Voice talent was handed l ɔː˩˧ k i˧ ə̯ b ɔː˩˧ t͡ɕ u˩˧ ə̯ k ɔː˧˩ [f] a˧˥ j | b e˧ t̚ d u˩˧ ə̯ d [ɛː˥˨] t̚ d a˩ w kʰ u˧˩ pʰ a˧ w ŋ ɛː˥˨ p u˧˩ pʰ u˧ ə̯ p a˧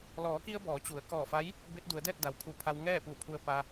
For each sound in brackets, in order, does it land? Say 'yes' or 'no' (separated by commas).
yes, yes